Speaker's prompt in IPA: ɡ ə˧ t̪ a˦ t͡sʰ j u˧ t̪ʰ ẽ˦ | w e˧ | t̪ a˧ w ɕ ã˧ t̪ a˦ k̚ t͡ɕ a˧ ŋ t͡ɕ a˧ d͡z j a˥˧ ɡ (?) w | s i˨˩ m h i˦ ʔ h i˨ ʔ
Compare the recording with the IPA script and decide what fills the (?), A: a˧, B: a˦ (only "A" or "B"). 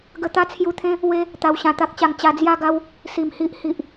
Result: B